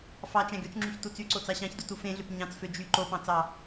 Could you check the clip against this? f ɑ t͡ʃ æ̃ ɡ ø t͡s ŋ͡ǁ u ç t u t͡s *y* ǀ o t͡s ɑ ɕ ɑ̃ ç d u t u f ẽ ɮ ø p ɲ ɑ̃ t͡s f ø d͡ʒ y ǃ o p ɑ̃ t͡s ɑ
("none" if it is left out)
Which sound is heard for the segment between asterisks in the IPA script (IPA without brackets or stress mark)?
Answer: y